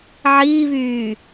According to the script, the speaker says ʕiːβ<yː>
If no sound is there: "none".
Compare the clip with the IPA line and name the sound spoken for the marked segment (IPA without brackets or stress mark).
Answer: yː